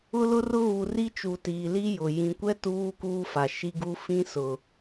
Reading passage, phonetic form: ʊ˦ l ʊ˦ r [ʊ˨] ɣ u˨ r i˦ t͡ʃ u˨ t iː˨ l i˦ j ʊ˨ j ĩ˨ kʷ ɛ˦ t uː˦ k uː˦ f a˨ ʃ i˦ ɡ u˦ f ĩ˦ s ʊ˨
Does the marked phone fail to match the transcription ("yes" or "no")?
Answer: yes